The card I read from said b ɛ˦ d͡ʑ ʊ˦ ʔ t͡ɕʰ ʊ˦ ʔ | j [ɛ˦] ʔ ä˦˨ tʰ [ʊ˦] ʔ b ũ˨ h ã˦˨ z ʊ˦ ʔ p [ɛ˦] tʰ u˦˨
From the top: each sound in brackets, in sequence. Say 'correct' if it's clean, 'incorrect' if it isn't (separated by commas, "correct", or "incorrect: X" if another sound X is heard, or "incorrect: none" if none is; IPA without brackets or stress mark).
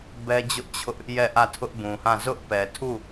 incorrect: ɛ˦˨, correct, incorrect: ɛ˨